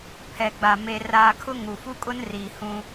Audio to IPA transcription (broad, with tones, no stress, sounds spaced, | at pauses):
pʰ ɛ˨ ɡ͡b a˨ m e˨ r aː˨ kʰ ʊ˦ ŋ u˨ f u˦ kʼ ʊ˦ n r iː˨ h ũ˦